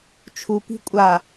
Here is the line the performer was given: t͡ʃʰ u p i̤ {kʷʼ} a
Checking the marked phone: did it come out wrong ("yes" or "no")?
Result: no